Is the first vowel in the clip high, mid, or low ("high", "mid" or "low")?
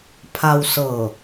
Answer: low